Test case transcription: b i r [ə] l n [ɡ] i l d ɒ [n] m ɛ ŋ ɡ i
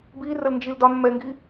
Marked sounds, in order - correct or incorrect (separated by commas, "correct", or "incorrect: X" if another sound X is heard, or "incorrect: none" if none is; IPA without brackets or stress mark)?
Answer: correct, incorrect: d͡ʒ, correct